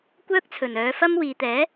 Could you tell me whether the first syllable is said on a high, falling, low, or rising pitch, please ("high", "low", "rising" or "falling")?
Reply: high